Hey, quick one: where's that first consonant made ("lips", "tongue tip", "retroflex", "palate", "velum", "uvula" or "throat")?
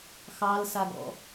velum